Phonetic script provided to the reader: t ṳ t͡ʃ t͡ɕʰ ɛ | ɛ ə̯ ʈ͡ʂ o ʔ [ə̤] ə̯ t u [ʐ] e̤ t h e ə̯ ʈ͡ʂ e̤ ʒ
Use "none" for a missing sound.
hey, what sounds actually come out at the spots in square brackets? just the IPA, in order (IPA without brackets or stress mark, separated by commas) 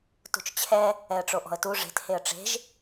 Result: ɔ̤, ʐ